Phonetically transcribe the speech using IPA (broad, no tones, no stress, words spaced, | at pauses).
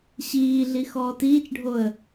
ɕiːɮi xɔːtiːt͡ʃɖʱoə̯